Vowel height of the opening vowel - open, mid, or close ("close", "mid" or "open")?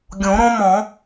mid